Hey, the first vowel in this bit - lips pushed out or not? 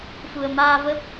yes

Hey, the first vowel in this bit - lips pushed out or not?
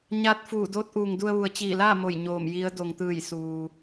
no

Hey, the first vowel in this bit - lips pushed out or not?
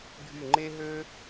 yes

